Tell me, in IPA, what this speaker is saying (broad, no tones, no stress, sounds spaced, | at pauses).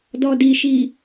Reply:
d ɔ d i ʃ i